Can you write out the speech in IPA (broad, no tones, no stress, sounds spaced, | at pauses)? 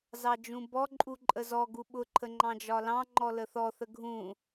z ɑ d͡ʒ ũ b ɔ ǃʼ u ǃʼ ə z ɔ ɡ u ɓ ʊ ǃʰ ə ŋ͡ǃ ɑ̃ d͡ʒ ɒ l ɑ̃ ŋ͡ǃ ɔ l ə θ ɔ θ ə ɡʱ ũ